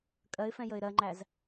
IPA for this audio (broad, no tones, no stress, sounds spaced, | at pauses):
kʼ ɜ ɪ̯ f ɛ̃ j ə ɪ̯ ɾ ɜ ŋ͡ǃ æ z